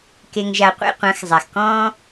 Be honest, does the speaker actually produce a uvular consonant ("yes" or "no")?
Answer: yes